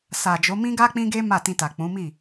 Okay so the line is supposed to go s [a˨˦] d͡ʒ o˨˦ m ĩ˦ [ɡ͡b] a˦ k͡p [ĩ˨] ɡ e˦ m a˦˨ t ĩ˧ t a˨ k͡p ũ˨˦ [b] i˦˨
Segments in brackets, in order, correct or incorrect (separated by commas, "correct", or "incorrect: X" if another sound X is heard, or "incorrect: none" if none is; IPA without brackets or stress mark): incorrect: a˨, incorrect: ɡ, incorrect: ĩ˦, incorrect: m